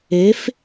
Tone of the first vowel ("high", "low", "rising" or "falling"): rising